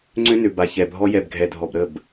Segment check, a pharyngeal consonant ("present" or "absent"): absent